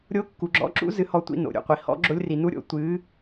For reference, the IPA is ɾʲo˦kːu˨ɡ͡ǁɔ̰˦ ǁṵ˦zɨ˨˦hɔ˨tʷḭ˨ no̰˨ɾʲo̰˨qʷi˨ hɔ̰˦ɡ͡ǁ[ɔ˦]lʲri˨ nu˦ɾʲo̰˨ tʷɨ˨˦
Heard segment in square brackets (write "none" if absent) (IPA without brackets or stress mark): o˦